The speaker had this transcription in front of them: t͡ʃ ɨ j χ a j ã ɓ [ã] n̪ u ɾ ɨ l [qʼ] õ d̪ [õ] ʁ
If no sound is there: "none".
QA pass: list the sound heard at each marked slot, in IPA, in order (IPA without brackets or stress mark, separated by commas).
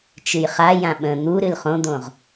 ə̃, χ, õ